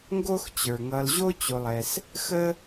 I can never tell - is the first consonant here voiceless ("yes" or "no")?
no